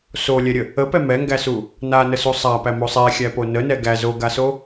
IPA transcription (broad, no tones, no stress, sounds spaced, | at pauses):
s o lʲ ɛ ɾʲ ə | ə p ɛ m ɛ ŋ ɡ æ s u | n a n ə s u sˤ a p æ m o sˤ ɛ xʲ æ p o n ə n ɛ ɡ æ z o ɡ a s o